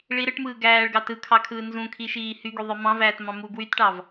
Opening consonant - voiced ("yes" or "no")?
yes